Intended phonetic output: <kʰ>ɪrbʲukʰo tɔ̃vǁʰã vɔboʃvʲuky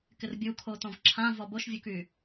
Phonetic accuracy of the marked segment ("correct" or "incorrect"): incorrect